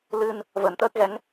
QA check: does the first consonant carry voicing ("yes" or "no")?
yes